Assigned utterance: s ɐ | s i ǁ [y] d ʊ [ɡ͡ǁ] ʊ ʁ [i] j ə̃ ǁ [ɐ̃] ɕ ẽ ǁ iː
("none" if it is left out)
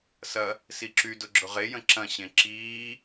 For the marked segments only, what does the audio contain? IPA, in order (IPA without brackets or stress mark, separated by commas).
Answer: y, ɡ͡ǁ, e, ɐ̃